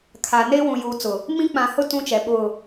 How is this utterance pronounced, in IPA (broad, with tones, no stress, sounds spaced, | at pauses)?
kʰ a˨ n e˦ w ũ˨ j uː˨ t͡s ʊ˨ | m ĩ˦ k͡p ã˨ h ʊ˦ t ũ˦ t͡ʃ ɛ˨ ɓ ʊ˦˨